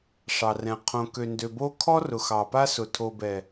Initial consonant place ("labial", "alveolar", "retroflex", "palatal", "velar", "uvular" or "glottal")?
retroflex